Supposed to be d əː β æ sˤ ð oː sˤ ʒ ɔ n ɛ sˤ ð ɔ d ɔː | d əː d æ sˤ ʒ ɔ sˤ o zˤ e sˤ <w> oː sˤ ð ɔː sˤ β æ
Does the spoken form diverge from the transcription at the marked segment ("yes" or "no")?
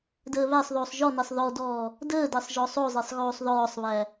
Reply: yes